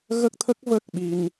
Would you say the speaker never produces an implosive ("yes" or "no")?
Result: no